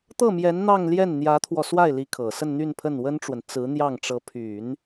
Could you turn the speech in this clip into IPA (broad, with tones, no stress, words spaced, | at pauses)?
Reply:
t̪ɤ˥˩mjɛ˧˥n n̪ɑ˥˧ŋljɛ˥˩nn̪jä˧˥t̪ʰwɔ˧ swa˥˩ɪ̯li˧˥ kʰɤ˨˩ sə˥˧nn̪y˥˧npʰə˥˩n wə˥nʈ͡ʂwə˨n t͡sɹ̩˧˥ n̪jɑ˥˩ŋʈ͡ʂɤ˧˥pʰy˨˩˦n